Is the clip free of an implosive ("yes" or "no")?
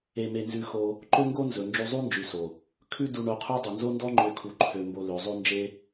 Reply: yes